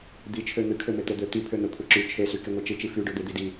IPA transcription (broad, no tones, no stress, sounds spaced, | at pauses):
d̪ i t͡ʃʰ ø n̪ ɨ kʰ ø m e t̪ o d̪ ø t̪ i pʰ ø n̪ ɛ kʷʰ ɛ ǁ y t͡ʃʰ e s y k e ŋʷ e t͡ʃ ɨ t͡ʃ i f y ɖ ø d̪ e d̪ i d i